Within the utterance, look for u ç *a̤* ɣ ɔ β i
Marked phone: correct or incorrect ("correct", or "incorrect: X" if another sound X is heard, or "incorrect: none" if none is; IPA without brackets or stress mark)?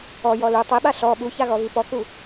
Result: incorrect: a